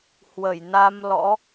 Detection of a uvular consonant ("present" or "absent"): absent